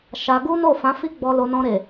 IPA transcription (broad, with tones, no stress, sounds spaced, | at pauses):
ʃ a˧ ɡ u˦ n o˦˨ f ã˨˦ f i˦ ɡ͡b ɔ˧ l o˧ n ɔ̃˧ ɾ e˨